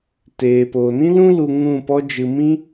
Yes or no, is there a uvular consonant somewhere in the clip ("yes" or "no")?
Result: no